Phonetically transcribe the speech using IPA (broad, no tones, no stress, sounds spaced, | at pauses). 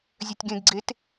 zʲ œ tʲ ɡ ẽ ɡ ɡ͡ǀ e t